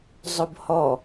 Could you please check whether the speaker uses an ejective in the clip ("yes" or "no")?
no